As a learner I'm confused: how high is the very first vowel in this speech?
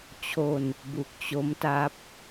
mid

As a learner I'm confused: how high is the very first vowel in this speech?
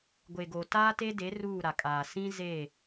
mid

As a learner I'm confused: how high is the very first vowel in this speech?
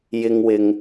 high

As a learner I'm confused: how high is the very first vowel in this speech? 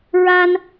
low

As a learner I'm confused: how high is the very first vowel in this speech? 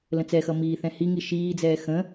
mid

